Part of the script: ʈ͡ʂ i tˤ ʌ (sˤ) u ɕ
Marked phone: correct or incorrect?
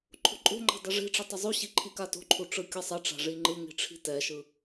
incorrect